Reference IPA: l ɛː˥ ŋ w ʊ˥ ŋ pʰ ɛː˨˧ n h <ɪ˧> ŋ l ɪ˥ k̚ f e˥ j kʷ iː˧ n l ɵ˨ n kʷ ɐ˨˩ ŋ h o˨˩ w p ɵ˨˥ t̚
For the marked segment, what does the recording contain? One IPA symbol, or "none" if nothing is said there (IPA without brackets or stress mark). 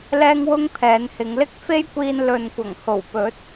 ɪ˨˧